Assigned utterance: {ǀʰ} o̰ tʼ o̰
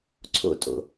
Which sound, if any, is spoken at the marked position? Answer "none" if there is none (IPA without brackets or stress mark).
ǀʰ